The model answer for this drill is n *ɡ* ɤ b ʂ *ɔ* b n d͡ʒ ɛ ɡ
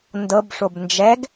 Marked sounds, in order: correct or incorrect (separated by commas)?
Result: incorrect, incorrect